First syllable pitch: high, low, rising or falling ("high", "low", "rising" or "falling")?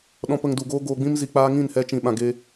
low